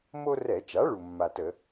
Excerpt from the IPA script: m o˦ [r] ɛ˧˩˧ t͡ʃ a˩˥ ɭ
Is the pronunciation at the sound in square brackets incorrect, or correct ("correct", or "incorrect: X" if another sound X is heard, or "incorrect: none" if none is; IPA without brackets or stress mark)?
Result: correct